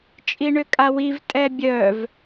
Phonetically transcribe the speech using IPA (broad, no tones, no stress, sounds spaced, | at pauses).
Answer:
t͡ʃʼ i ɳ ʏ kʼ a w i v tʼ ɛ bʲ œ v